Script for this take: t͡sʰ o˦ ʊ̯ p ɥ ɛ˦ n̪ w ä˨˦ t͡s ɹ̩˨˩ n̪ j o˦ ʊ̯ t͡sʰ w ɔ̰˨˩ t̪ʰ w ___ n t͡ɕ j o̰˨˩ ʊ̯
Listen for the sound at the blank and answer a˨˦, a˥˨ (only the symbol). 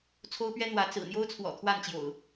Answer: a˥˨